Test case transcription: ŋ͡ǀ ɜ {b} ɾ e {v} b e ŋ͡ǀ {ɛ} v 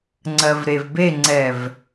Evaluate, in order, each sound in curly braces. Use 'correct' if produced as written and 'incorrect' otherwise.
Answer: incorrect, correct, correct

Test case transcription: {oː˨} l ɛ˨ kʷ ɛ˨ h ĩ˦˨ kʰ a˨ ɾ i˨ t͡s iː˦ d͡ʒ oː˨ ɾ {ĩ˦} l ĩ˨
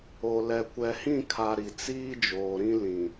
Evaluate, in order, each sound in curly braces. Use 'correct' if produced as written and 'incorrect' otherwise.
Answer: incorrect, correct

